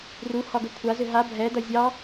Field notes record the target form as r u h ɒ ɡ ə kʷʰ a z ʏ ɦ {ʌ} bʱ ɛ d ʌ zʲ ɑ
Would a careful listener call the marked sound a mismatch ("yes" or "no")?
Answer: yes